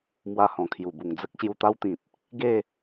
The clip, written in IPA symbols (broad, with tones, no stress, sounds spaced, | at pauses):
m w a˧ h ɔ̃˨˩ kʰ j u˨˩ b u˨˩ ŋ d͡z ə˦ k̚ ɕ j u˧ t̪ a˦ w t̪ ĩ˨ t̚ | ɡ e˥˧